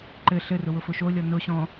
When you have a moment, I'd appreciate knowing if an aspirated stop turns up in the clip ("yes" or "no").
no